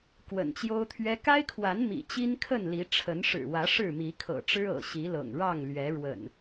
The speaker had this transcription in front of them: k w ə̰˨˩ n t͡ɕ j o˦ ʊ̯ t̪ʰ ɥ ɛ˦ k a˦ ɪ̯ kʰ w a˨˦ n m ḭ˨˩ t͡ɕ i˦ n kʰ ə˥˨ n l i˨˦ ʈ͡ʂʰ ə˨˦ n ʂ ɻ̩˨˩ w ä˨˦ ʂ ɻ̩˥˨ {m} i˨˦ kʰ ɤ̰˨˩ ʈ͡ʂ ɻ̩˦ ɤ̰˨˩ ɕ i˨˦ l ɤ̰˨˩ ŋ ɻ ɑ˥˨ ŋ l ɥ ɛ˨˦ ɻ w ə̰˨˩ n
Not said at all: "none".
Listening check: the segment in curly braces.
m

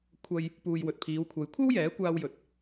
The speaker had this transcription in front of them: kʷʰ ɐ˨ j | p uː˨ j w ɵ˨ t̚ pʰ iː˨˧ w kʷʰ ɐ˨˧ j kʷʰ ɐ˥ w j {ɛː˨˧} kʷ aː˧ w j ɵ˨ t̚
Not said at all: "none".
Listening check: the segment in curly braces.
ɛː˨˥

